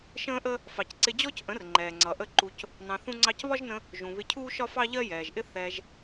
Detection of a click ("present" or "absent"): present